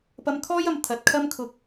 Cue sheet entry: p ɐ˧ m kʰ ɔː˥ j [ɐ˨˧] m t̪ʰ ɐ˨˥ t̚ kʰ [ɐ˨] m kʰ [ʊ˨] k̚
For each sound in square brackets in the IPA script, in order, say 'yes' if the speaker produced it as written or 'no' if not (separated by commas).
yes, no, no